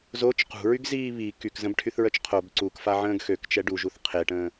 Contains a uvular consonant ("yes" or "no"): yes